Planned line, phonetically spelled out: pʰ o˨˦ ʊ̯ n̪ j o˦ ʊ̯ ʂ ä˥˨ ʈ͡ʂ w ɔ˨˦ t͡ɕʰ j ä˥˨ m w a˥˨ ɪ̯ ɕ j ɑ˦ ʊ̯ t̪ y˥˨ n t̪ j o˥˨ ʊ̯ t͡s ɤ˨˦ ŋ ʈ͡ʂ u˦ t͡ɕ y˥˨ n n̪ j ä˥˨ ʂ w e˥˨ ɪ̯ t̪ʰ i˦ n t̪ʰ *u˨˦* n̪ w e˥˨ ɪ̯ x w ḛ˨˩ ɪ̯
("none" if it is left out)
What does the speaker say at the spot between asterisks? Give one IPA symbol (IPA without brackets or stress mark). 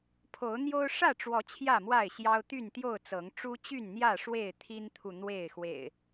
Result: u˨